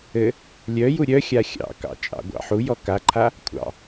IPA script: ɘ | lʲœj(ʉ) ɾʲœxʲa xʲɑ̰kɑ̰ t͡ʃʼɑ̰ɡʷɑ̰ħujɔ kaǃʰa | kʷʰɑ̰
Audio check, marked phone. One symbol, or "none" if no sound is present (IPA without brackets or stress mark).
u